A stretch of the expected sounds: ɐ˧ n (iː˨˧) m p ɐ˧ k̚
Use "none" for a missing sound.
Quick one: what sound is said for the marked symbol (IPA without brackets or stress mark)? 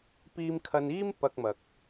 iː˥